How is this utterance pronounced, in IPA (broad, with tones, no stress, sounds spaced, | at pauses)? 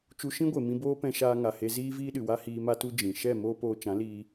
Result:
t͡ʃ u˧ ʃ ĩ˦ ɡʷ e˨ m ĩ˧ b oː˦ p ɛ̃˧ ʃ aː˧ ŋ a˨ h e˧ z iː˦ v iː˦ ɗ ɨ˨ w a˦ h iː˧ m a˦ t u˦ d͡ʒ ĩ˨ ʃ ɛ˦˨ m oː˦ p oː˧ t͡ʃ ã˨˦ l iː˧